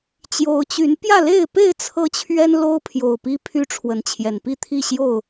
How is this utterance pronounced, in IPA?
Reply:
t͡ɕ j o˨˦ ʊ̯ t͡ɕ y˨˦ n p j ä˥˨ l e˥˨ ɪ̯ p e˥˨ ɪ̯ t͡sʰ ɤ˦ t͡ɕʰ ɥ ɛ˦ n l o˦ ʊ̯ pʰ j o˨˩ ʊ̯ p i˦ pʰ y˦ ʈ͡ʂʰ w ə˨˦ n t͡ɕʰ j ɛ˨˩ n p i˥˨ t̪ʰ i˥˨ ɕ j o˥˨ ʊ̯

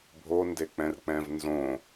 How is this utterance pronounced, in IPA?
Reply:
bʱ o n d e k͡p ɛ̃ r k͡p ɛ̃ v n z õ

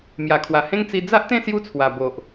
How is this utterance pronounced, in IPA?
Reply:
m j a˨˩ kʰ w a˨˩ h ẽ˦ ŋ t͡s i˧ d͡z a˦ ʔ t̪ ẽ˥˧ s j u˦ t͡sʰ w a˨˩ b o˨ ʔ

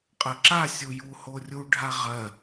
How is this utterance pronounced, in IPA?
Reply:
qʼ ə ǁ a sʲ u j u h o rʲ u ɖʱ a ʁ ɜ

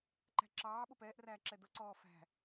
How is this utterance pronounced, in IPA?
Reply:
ǃ æ̤ ǁ ɑː ɓ ʊ p ɛː ʔ r æː ǁ ɛ d ʊ ǀ ɔː f æ̤

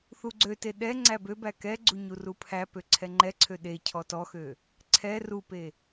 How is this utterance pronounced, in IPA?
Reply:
θ u ɡ͡ǀ ø t e ɗ ɛ ŋ͡ǀ æ b ø b æ k ɛ ɡ͡ǀ u ɲ u r u pʰ æ p ø ǀʰ ɛ ŋ͡ǃ ɛ ǀʰ ø ɗ e cʰ ɔ t ɔ x ø | ǀʰ ɛ r u p e

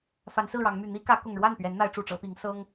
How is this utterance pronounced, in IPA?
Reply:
f a˨˦ n s ɹ̩˥˨ ɻ ɑ˨˦ ŋ m y˨˩ n̪ i˦ k ä˨˦ k ʊ˨˩ ŋ ɻ w a˥˨ n p ɥ ɛ˨˦ n n̪ a˨˦ ɪ̯ ʈ͡ʂ u˨˩ ʈ͡ʂ ɤ˨˦ p i˨˦ ŋ s ɤ˦ ŋ

